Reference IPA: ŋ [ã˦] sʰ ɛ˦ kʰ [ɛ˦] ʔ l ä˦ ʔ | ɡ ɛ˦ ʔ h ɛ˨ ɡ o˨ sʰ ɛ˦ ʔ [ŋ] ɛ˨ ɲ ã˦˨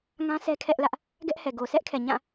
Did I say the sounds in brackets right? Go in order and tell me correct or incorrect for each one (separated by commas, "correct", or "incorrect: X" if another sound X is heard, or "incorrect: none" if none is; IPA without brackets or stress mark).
correct, correct, incorrect: kʰ